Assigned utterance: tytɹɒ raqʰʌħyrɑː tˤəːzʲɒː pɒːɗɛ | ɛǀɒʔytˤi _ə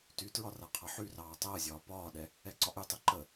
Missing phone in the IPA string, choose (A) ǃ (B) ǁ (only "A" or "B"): A